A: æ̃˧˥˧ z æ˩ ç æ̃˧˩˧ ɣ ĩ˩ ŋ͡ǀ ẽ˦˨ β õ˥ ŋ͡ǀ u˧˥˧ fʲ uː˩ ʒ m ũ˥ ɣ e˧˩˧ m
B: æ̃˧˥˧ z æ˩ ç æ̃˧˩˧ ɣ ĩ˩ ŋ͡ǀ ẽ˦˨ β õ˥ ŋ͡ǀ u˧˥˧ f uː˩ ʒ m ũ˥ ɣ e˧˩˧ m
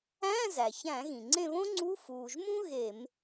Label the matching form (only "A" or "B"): B